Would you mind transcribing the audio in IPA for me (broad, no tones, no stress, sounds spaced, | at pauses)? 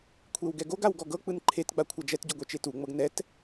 kʷʰ e w ɡ ɛ ɡ o ɡ a w ɡ ɔ ɡ ɤ k͡p ɯ n ǃʰ e t ɡ͡b a kʷʰ a d͡ʒ ɛ t ɟ o ɡʷ ɛ t͡ʃ e t u ŋ͡m ɤ ɡ n ɛ t